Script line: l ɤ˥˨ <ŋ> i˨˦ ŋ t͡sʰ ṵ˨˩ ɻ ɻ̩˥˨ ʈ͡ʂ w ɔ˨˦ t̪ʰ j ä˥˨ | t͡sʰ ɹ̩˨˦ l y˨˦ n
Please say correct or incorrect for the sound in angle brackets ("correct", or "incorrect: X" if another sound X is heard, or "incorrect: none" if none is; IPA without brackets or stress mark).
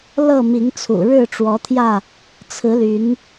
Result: incorrect: m